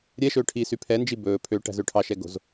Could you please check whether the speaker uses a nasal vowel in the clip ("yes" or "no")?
no